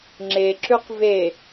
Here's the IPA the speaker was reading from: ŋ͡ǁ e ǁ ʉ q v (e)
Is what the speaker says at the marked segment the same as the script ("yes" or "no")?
yes